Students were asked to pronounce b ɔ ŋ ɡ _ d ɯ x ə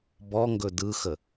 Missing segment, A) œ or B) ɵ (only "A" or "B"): B